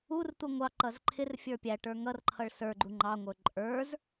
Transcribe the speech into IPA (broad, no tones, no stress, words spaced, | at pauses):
urt̪u ŋʷɑǃʌz ǃʰɪrfʲə˞ pʲæʈə˞ ŋʌrǃʰʌɭ sə˞ɡ͡ǃu ŋ͡ǃɑŋʷə˞ ǃʼə˞z